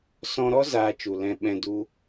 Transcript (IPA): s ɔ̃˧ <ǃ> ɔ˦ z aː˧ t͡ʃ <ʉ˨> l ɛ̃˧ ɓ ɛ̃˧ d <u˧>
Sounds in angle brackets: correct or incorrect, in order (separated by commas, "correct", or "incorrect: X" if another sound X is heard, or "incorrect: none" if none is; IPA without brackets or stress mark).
incorrect: ɾ, incorrect: u˨, incorrect: u˦